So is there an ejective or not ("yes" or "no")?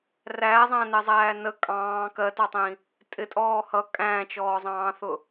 yes